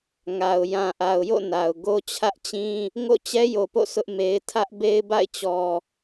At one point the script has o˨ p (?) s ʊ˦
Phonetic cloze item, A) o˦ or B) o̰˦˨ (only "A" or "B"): B